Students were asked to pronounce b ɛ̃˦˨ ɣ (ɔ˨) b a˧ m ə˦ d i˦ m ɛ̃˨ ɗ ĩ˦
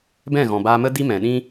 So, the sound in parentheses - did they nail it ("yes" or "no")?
no